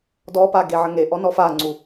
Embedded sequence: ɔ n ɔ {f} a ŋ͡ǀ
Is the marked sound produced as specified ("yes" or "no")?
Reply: yes